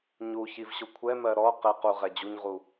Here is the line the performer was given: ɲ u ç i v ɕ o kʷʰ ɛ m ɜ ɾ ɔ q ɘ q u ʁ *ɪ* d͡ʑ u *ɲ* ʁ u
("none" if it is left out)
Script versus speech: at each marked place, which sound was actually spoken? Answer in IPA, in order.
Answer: ɛ, ɲ

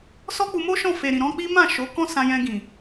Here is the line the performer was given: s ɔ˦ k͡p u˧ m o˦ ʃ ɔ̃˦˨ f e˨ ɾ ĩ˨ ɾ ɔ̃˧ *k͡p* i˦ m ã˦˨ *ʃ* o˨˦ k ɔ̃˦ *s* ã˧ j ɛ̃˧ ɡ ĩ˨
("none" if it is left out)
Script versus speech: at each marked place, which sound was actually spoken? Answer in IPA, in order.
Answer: k͡p, ʃ, s

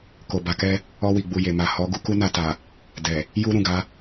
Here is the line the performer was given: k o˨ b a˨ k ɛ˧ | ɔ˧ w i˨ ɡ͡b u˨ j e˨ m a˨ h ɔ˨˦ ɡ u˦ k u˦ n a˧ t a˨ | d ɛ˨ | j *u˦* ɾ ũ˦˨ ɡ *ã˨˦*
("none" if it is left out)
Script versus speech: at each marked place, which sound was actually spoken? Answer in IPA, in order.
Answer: u˦, a˨˦

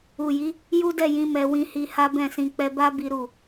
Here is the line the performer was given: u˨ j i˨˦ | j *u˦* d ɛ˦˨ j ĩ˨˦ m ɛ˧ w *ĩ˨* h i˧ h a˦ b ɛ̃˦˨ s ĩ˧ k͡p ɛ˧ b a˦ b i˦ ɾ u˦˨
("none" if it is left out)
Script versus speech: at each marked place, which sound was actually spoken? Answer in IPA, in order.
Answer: u˦, ĩ˧

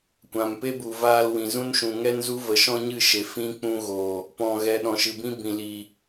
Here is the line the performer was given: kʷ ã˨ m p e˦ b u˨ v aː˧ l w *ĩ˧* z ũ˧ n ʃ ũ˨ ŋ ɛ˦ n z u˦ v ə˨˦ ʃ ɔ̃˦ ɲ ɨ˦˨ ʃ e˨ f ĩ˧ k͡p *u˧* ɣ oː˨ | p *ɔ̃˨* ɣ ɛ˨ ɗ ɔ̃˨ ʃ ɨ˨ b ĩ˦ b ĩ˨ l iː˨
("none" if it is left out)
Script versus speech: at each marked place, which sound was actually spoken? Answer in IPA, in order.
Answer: ĩ˨, ũ˧, ɔ̃˨

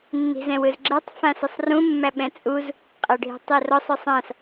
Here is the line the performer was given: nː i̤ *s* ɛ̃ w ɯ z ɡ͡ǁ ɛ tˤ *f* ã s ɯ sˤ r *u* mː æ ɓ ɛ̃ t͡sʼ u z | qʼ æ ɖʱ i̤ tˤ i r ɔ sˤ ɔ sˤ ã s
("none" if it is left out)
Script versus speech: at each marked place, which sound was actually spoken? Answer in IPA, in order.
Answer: z, f, ũ

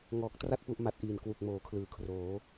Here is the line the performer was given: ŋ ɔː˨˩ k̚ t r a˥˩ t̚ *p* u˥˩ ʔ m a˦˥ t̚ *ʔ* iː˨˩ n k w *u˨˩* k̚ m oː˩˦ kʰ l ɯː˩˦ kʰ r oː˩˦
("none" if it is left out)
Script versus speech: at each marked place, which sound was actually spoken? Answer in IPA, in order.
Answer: p, ʔ, u˨˩

